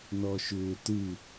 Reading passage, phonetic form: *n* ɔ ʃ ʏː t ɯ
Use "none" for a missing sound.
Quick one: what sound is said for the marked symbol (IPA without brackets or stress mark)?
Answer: n